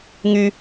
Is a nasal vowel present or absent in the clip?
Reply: absent